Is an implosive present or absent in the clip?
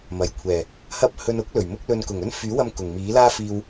absent